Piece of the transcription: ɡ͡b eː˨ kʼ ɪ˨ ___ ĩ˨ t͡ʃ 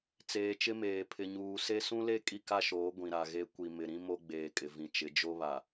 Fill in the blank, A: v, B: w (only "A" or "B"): A